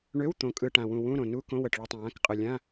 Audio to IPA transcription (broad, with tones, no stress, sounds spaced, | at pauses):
ɳ ø˧˥˧ w t̪ õ˨˩ kʼ ɯ˨˩ ʈ ã˨˩ w ũ˨˩ w ũ˧˥˧ ɾ õ˨˩ n u˧˥˧ k õ˧˥˧ w ə˨˩ ʈ ɭ ɯ˨˩ tˤ ə̃˨˩ w ã˧˥˧ k qʼ ɯ˨˩ lʲ ã˧˥˧